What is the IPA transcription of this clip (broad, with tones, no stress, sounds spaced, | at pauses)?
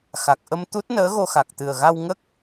x a˨˩ k̚ ʔ ə˧ m t̪ u˦˥ t̚ n əː˧˥ ɣ o˧ x a˨˩ k̚ t̪ ɨ˨˩ ə̯ ɣ a˧ w ŋ ə˦˥ k̚